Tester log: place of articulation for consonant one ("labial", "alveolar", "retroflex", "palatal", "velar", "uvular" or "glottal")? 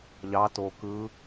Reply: palatal